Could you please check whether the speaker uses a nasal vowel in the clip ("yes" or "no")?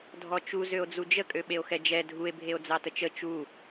no